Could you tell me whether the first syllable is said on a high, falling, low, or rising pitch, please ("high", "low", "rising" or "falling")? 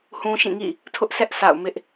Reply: high